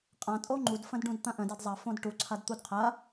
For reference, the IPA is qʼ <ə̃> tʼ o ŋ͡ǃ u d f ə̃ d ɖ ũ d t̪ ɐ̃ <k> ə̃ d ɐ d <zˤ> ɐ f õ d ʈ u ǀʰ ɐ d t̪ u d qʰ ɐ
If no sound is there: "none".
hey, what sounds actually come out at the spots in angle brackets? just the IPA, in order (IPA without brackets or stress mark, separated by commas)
ã, ʔ, zˤ